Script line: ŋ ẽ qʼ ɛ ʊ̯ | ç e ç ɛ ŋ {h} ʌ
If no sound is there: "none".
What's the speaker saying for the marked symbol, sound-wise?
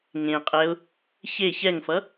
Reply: f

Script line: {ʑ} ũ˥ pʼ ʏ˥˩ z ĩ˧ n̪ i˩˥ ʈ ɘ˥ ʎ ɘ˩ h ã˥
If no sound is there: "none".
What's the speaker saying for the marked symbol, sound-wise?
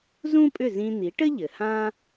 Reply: z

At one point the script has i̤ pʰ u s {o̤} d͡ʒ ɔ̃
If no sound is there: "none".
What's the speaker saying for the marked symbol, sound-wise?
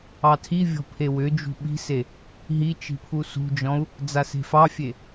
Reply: ṳ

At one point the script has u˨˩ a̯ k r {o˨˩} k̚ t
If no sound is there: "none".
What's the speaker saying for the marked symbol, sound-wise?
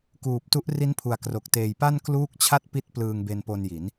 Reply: o˨˩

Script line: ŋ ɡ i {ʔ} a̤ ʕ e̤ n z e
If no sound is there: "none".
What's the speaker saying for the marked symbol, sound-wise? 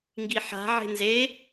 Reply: ħ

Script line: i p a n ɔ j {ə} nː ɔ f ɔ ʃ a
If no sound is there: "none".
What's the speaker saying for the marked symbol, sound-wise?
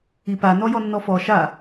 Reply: ɔ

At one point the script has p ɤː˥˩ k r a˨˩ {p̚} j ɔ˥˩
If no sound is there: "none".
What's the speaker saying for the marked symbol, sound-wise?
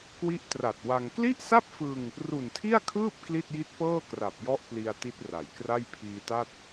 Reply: p̚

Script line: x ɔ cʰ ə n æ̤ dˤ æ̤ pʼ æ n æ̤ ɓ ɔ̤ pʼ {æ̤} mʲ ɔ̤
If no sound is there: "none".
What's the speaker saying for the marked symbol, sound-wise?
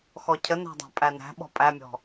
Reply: æ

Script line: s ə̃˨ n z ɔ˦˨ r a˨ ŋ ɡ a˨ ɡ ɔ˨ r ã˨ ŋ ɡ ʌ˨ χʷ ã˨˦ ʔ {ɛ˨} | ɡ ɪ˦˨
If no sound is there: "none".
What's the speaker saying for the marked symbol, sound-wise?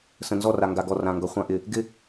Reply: ɪ˨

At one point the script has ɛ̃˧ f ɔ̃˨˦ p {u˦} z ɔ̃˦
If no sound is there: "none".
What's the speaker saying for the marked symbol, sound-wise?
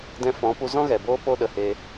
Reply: u˧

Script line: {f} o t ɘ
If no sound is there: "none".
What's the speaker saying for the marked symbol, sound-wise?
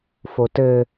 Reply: f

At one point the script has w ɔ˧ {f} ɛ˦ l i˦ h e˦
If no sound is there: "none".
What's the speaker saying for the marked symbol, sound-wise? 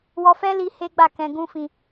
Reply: f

